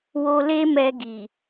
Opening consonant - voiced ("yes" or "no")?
yes